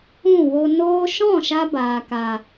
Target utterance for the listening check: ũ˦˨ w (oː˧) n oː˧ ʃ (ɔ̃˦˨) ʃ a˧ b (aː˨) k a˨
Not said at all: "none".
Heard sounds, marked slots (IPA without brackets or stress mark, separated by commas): o˧, ɔ̃˦˨, aː˨